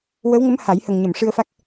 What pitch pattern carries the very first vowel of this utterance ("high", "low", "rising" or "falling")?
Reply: rising